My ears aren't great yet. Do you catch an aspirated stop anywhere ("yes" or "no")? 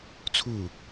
yes